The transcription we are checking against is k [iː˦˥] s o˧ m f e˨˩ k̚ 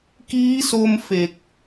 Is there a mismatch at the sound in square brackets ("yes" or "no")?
no